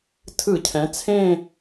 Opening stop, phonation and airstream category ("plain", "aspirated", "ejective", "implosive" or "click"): aspirated